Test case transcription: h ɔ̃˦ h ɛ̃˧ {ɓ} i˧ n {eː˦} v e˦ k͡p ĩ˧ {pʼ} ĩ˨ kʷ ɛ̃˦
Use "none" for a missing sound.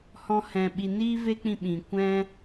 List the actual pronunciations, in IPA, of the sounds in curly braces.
ɓ, iː˦, ɓ

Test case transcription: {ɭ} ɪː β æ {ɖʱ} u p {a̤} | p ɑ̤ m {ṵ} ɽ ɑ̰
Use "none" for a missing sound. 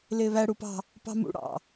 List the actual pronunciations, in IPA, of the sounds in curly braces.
l, ɽ, ɑ̤, ṵ

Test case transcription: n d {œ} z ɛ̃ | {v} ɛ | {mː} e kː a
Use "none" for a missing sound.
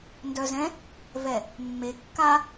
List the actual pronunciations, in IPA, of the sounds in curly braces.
œ, v, mː

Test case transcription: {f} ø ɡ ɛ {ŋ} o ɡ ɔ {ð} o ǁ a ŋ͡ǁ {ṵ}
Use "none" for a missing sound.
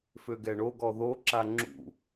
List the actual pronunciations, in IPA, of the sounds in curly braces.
f, ɳ, ð, ṵ

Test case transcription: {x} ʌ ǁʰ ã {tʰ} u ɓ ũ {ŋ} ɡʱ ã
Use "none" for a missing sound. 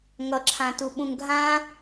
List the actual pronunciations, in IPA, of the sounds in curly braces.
ŋ, t, ŋ

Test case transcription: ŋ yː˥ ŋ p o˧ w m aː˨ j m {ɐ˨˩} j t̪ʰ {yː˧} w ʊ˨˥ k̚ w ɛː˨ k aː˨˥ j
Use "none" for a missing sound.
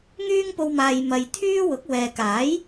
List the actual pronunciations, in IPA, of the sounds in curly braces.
ɐ˨, yː˥

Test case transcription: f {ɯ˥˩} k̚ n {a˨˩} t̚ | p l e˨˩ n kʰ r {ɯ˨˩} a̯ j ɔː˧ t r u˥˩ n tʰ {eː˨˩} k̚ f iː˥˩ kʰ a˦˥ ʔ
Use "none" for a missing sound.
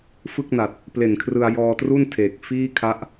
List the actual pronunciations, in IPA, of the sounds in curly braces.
ɯ˥˩, a˨˩, ɯ˧, eː˨˩

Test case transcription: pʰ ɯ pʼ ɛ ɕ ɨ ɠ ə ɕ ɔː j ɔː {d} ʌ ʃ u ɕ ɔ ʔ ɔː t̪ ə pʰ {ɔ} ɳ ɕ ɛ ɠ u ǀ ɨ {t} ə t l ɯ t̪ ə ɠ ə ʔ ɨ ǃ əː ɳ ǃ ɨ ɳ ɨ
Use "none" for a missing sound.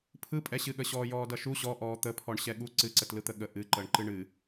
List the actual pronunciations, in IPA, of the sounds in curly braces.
d, ɔ, ǀ

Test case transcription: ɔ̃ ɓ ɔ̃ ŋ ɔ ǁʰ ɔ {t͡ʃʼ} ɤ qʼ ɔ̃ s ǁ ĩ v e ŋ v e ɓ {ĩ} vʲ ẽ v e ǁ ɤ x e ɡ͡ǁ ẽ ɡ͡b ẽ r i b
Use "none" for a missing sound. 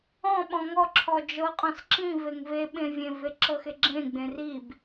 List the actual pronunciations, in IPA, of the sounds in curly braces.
d͡ʒ, ẽ

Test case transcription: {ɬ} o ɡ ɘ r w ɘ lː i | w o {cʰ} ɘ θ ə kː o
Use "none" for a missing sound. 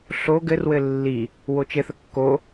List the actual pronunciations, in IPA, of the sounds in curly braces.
ɬ, t͡ʃ

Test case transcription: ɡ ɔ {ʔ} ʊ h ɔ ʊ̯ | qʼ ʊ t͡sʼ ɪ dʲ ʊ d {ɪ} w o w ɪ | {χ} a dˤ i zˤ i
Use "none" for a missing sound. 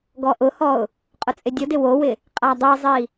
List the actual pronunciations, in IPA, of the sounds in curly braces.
ʔ, ɪ, qʼ

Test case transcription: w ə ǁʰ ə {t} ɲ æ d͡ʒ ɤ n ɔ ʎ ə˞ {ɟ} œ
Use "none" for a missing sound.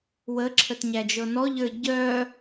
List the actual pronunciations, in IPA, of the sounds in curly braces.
t, ɟ

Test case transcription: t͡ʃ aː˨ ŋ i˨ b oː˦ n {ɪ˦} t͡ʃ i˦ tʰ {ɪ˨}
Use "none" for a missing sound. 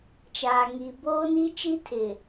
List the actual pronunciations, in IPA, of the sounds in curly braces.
i˦, ɪ˨

